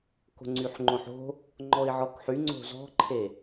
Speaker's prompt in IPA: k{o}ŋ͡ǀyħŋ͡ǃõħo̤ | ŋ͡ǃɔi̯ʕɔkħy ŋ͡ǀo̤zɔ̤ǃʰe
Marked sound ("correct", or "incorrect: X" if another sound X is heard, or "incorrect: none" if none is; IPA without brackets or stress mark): incorrect: o̤